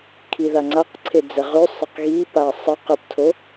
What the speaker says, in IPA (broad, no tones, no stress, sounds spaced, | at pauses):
kʰ i ð a ŋ͡ǀ a q ǀʰ e d͡z ɛ ʁ ʉ sˤ ə q ɣ i p a sˤ ə q ə p tʰ o